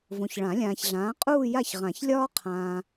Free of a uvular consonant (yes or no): no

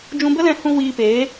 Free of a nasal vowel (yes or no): no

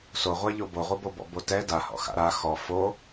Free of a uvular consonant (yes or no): no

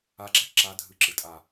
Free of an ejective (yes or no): no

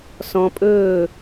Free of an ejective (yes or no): no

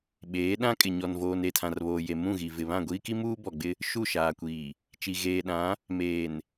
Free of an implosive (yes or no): no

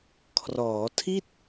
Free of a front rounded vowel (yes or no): yes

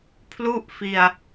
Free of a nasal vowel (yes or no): yes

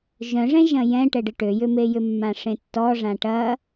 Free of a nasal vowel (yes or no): no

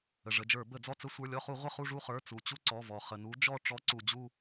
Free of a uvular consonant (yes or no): no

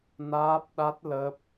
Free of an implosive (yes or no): no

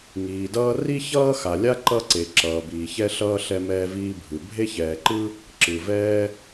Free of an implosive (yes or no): yes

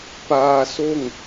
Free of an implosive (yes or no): yes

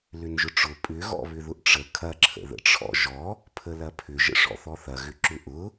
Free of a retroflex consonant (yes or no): no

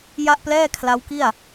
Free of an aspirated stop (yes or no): no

